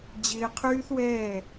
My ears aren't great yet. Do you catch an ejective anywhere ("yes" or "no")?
no